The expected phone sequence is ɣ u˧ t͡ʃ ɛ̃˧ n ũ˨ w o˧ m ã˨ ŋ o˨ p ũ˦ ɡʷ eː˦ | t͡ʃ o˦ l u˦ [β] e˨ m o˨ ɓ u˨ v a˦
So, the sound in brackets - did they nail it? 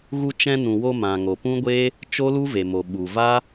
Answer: no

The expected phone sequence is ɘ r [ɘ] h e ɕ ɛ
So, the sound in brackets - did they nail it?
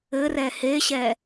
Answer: no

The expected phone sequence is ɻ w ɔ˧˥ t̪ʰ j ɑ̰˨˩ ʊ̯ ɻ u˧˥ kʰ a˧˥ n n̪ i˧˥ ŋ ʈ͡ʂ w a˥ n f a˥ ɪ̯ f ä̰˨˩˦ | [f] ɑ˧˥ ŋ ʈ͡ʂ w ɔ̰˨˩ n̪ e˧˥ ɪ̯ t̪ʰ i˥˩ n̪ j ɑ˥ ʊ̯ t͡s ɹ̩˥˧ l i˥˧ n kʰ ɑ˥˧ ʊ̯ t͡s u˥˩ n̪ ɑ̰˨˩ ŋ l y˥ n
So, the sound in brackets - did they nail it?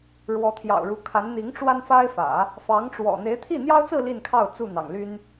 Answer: yes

